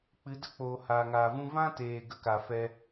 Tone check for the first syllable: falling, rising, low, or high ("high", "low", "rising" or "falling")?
rising